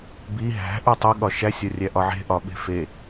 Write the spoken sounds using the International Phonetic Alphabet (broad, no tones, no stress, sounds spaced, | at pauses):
b i ɦ æ̤ ʔ u tˤ o ɠ ɒ ʃ æ sʲ ɒ rʲ æ ʔ ɒ ʕ e̤ ʔ ɒ ɓ e̤ f e